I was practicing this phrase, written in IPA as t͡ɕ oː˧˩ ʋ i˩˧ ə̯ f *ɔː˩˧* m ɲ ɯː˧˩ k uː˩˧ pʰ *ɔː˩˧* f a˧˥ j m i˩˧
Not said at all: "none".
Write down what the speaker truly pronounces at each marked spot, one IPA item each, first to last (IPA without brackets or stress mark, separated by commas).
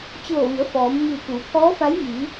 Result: ɔː˩˧, ɔː˧˥